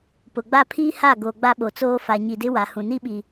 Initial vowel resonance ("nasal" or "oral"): oral